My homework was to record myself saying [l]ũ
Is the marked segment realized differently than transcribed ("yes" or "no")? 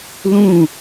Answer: no